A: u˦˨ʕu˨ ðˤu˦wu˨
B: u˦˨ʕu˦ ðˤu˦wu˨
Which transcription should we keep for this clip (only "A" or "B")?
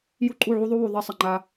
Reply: B